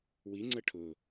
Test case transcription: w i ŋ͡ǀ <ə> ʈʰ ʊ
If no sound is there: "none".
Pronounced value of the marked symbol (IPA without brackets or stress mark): ə